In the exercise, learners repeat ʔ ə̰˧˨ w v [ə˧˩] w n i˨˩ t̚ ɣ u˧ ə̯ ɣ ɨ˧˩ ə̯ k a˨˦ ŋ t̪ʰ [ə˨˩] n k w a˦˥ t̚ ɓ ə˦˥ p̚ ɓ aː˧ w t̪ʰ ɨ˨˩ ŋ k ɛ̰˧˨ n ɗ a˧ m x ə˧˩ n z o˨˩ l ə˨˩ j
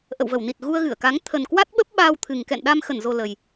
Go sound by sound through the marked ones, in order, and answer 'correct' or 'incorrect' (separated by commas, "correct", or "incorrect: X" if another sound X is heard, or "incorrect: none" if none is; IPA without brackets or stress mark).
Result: correct, correct